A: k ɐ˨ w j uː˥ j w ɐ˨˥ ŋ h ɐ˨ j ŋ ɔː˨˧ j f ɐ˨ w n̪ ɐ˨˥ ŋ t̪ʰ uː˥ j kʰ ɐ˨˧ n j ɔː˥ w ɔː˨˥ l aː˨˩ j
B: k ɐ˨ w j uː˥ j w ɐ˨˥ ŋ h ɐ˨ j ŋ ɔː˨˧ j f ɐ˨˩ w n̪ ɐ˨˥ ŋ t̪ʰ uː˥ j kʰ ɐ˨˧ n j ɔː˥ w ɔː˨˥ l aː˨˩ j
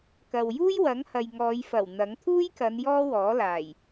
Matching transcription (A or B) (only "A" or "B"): B